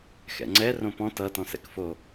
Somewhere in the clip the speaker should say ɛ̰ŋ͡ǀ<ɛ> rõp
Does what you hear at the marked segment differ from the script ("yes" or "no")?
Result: no